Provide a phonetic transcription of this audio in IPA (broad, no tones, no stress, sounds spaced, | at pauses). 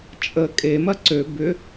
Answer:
t͡ʃʼ ə kʼ e m ɐ ǀ ø b ʏ